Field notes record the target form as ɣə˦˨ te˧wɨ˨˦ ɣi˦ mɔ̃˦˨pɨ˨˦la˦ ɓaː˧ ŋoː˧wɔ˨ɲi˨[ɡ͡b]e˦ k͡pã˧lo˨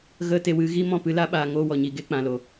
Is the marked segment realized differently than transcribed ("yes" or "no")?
yes